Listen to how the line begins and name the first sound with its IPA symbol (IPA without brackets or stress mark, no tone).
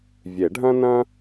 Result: vʲ